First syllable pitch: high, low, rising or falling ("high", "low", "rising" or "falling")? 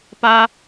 high